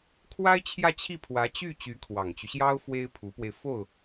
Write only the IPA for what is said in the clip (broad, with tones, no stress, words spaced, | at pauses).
kʰwa˥ɪ̯t͡ɕʰjä˥˧t͡ɕʰi˥˩ pʰwä˧˥t͡ɕy˥˩ t͡ɕy˧˥kʰwɑ˨˩ŋt͡ɕy˦ɕjɑ˥ʊ̯ fwe˥ɪ̯pʰu˧˥pwe˧ɪ̯ fo˥˩ʊ̯